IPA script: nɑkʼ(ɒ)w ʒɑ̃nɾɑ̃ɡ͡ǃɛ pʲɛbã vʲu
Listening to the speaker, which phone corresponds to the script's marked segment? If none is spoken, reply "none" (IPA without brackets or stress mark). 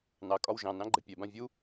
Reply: ɒ